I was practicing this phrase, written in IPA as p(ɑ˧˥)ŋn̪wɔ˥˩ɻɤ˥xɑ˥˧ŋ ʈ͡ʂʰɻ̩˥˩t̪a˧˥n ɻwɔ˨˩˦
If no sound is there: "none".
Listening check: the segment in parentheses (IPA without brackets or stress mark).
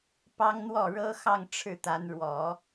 ɑ˥